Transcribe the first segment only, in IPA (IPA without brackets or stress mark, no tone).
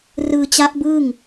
r